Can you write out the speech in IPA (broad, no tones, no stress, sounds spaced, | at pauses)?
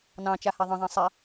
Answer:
n ɑ̃ t͡ʃ a h a ðˤ ə̃ ðˤ ã sˤ a